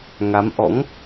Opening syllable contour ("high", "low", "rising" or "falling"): rising